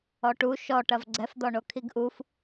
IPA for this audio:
ɔ ʈ u ʃ ɔ ʈ ɐ v ɡ͡ǀ ɛ f d̪ ɔ ɳ o kʰ i ɡ ʔ u f

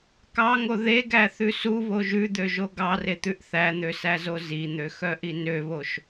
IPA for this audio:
k ɑ ŋ o ð e ɡ æ θ ʉ s u β o ʒ ʉ d̪ ø ʒ o ɡ ɑ r e t̪ ʉ ʔ θ æ n̪ ø s æ z o z i n̪ ø x œ ʔ i n ø β o ʃ

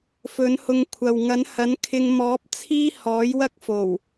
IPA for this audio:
f ɵ˨˥ n h ʊ˧ ŋ kʷʰ ɐ˨ w ŋ ɐ˨˥ n h ɐ˨˥ n kʰ ɪ˧ ŋ m ɔː˨˥ p̚ t͡sʰ iː˥ h ɔː˨˥ j w ɐ˥ k̚ f o˨˩ w

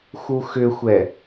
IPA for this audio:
x u x ʏ xʷ ɛ

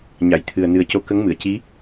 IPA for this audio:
ɲ a˨˩˨ j t̪ʰ ɨ˨˩ ə̯ n ɨ˨˩ ə̯ c o˧˥ k ə˧˥ ŋ m ɨ˨˩˨ ə̯ c i˧˥

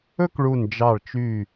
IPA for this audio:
ɵ˥ k ɭ u˧˩ n d͡ʒ ɑ˧˩ ɭ t͡ʃ y˧˩

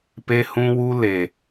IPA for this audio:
p e˧ h ũ˧ w u˧ l e˨

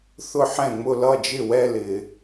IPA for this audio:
θ ʊ˥˩ ħ ɛ̃˥˩ ŋ͡m ʊ˥˧ l ʌ˥˩ d͡ʒ ɪ˥˩ w ɛ˥˧ l ɪ˨˩˦

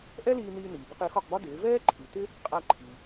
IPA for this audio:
ʔ ɛ˥ l iː˧ n iː˧ n iː˩ b ɪ˧ q ɪː˩˥ x ɒ˥˩ q b ɒ˥ d ɪː˩˥ v ɛː˥ ǃʰ i˩ t ɪ˥ | qʼ a˧ ǃʰ i˩

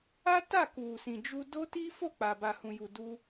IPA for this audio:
a˦ t a˦˨ k u˨ s ĩ˨ d͡ʒ u˧ d o˦ t i˦ f o˦˨ k͡p a˨ b a˨ h ũ˨ j u˨ d u˧

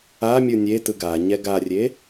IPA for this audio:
a mʲ ɯ nʲ e t ɯ ɡ a ɲ ɛ ɡ a rʲ e

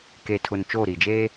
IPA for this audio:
k e˨ tʰ ʊ˨ n t͡ʃ oː˦˨ ɾ i˨ d͡ʒ e˦

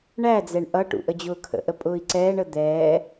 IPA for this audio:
ɳ æ d͡z ɛ ɳ ʔ ʌ ʈ ṵ ʔ ə d͡ʑ ʊː kʰ ə̰ ʔ ə pʼ ʊː i̯ ǀ ɛː ɳ ə d̪ ɛː

